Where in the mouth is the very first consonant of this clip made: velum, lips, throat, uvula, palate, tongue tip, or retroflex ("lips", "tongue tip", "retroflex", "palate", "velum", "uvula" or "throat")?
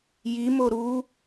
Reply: palate